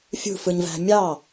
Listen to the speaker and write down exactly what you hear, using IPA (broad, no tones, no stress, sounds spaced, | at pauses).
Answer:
fʲ ṳ f ɯ ɲ v æ̤ mʲ ɑ